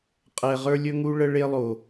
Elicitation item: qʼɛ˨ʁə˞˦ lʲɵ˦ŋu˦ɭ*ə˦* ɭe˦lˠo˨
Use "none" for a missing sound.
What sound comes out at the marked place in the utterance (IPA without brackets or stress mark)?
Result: ə˦